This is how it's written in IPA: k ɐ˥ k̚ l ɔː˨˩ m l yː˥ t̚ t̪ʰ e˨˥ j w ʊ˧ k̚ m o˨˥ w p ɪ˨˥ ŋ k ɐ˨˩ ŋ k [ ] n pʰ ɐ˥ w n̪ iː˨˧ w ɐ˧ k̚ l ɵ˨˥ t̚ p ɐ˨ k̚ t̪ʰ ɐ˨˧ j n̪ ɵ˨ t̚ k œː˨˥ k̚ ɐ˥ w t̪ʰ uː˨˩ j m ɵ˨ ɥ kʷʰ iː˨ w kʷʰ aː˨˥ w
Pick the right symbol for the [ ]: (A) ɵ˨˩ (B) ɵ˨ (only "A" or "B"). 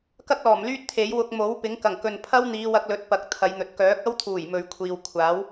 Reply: B